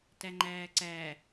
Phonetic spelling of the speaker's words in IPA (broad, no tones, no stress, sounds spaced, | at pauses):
t æ ŋ͡ǃ æː ǀ æ